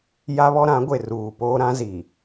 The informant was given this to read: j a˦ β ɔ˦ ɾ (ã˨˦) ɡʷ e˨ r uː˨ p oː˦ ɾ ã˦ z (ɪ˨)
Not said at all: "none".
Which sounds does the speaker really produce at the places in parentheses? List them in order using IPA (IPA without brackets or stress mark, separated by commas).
ã˨˦, i˨